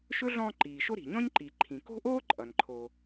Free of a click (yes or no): no